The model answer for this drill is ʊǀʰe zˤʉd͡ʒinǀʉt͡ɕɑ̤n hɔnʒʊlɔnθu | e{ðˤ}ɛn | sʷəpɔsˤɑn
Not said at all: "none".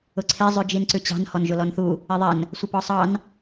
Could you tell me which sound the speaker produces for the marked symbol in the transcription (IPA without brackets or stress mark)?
ðˤ